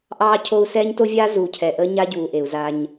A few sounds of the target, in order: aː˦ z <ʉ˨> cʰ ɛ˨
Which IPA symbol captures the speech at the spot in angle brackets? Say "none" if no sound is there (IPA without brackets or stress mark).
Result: u˨